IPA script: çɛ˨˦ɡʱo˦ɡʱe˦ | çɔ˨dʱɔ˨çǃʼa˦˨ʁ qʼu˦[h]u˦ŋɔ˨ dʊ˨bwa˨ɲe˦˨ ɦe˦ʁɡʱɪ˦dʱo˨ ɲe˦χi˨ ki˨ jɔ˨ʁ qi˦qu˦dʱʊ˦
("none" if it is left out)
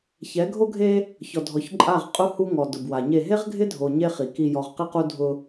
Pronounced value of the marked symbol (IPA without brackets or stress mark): h